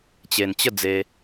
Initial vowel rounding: unrounded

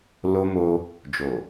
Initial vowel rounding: rounded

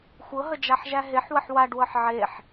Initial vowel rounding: unrounded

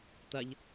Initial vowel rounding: unrounded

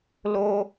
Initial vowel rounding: rounded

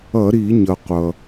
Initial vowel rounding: unrounded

